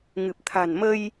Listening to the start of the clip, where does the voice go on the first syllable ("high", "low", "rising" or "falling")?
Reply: low